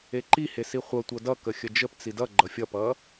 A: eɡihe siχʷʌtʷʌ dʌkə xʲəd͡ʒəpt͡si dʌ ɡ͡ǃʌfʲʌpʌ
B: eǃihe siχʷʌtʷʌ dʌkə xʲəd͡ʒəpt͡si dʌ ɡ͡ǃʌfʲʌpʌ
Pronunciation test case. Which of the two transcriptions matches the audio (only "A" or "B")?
B